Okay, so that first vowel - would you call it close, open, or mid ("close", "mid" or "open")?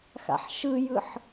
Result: open